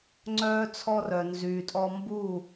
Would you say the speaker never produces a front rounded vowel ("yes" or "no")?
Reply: no